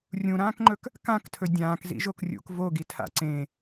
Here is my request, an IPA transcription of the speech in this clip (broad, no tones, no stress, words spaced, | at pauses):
rʲũɾãːkŋ͡ǃɵk | kãktʰɵ dʲãːkzḭʒok rʲṵk voɡitʰa̰ ǀẽ